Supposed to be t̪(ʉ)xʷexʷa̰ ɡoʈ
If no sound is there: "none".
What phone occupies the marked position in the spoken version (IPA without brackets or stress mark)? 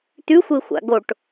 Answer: ʉ